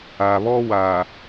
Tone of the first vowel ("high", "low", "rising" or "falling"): low